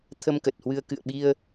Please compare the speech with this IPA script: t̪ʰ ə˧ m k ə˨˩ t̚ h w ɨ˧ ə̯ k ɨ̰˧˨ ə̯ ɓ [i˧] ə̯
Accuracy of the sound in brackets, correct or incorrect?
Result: correct